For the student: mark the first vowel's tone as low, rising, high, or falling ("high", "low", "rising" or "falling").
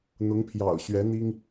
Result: rising